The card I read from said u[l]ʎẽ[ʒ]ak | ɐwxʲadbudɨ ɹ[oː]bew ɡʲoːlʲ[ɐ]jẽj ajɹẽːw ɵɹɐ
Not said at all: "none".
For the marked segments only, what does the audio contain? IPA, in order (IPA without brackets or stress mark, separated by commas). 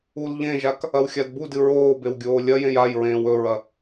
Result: l, ʒ, oː, ɐ